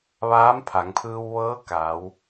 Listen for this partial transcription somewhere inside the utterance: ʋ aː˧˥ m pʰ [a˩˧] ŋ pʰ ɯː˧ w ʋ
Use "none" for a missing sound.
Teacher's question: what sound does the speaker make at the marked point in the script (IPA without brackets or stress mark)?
a˩˧